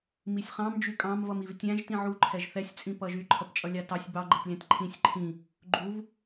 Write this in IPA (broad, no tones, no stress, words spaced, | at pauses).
misʲχɑ̃m d͡ʒykʼɑ̃mvʌm ivtʲæ̃ʒ tĩʕu ǃʰɛʒθɛsʲt͡sʼĩ pʌʒy ǃʰʌpt͡ʃʼʌlʲɑtɑsʲ bɑɡ͡ǃɛtlʲæ̃t ǃʰĩsʲ ǃʰĩ | ɡ͡ǃuv